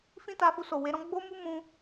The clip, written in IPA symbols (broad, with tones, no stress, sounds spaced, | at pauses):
f ĩ˦ t a˧ f u˧ s o˨ w e˨˦ ɾ ɔ̃˦ ɡ͡b o˦ m u˦ m ũ˧